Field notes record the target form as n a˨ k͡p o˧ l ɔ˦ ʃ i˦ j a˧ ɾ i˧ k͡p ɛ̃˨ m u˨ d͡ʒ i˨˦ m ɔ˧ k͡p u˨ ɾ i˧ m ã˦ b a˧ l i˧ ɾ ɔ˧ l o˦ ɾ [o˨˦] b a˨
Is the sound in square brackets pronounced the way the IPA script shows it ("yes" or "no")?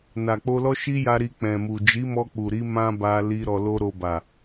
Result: no